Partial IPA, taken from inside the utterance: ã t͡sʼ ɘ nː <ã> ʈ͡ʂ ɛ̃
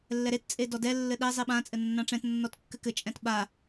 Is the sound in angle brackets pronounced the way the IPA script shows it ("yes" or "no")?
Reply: yes